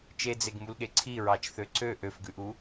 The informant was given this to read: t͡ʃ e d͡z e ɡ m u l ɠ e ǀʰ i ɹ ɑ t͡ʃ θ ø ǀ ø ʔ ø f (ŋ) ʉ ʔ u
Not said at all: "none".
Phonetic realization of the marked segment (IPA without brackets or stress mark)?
ɡ